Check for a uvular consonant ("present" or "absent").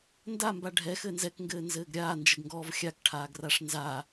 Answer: absent